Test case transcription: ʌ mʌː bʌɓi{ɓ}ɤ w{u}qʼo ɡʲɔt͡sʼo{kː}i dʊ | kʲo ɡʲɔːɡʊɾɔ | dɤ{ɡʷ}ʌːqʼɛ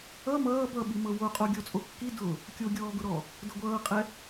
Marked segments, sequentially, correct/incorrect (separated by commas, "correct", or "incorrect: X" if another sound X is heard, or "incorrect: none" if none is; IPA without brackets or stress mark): incorrect: m, incorrect: o, correct, correct